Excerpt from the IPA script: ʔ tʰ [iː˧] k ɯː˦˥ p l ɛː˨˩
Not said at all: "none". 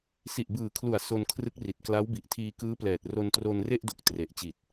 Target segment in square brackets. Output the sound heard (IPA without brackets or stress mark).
iː˧